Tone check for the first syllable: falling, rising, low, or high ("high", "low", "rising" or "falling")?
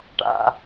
low